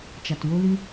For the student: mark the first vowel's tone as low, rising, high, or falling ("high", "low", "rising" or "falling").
low